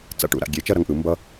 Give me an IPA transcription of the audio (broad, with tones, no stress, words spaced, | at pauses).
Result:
t͡sa̰˧ʈṵ˩˥ɾa̰˥˩ ɡʲe˩˥ t͡ʃʌ˥ɾʌ˩˥ŋʔɯ˩ mbʌ˥